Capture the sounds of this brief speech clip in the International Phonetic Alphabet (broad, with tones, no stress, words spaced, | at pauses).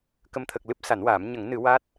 kə˨˩mt̪ʰə˨˩k̚ lɨ˦˥p̚sa˨˩˦nwaː˨˩˦m ɲə˨˩˦ŋnɨ˨˩˦ wa˦˥t̚